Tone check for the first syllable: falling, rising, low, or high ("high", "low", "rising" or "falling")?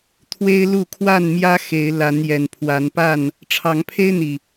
high